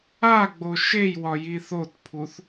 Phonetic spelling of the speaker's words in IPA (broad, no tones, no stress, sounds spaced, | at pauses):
a ɡ͡b o ʃ e j w ɒ j i θ o t pʰ u θ